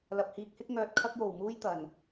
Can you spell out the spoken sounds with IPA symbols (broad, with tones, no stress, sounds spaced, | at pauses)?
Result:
l ɐ˨ p̚ h iː˧ k̚ h ɪ˥ k̚ ŋ œː˧ t̚ kʰ ɐ˥ k̚ j o˨ w m uː˥ j t̪ ɐ˨ n